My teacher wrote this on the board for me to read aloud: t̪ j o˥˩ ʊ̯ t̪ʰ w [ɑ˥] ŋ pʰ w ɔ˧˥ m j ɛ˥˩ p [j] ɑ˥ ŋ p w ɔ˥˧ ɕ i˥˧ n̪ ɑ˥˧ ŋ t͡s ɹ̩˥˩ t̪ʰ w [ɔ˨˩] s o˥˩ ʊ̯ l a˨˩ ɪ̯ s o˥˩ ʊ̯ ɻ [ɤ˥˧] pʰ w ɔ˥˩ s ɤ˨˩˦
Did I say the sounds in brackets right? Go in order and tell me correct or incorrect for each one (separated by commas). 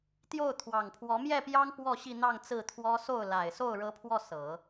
incorrect, correct, incorrect, incorrect